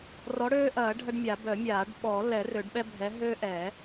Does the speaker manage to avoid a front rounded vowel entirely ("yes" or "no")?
no